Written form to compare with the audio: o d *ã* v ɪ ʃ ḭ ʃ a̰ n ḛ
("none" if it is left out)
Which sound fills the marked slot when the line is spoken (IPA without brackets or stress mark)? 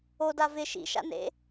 a